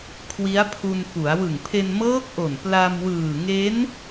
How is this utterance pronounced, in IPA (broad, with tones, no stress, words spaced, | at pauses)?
kʰwi˦˥a̯pʰu˧nfu˩˦a̯ wɯ˨˩ŋpʰe˧nmɤː˦˥k̚ʔo˨˩n pla˧mwɯː˨˩ŋe˦˥n